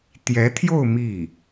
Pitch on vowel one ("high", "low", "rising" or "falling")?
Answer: rising